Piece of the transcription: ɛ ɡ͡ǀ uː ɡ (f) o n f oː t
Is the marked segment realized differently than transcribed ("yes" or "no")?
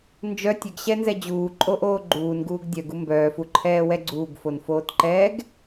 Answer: no